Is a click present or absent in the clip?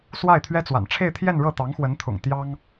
absent